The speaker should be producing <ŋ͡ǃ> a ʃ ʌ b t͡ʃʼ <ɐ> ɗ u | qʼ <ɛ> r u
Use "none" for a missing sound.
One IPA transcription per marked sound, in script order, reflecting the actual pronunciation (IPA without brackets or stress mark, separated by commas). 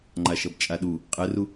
ŋ͡ǃ, a, ɛ